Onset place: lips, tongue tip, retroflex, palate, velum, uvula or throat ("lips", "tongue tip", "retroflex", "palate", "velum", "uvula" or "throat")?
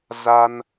tongue tip